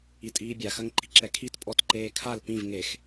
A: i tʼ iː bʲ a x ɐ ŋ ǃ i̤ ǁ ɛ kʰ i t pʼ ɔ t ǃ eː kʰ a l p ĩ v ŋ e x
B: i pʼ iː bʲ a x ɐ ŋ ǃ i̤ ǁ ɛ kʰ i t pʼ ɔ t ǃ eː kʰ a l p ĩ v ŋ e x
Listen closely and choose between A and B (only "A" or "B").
A